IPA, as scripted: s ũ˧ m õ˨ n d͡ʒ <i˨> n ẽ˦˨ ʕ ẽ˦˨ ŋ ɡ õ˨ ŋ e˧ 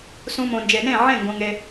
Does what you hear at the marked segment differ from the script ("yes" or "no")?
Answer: yes